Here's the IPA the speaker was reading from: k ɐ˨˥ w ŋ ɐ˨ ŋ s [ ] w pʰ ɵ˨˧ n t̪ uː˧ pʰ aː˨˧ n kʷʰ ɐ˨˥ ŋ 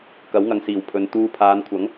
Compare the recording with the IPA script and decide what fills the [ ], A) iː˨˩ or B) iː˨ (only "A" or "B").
A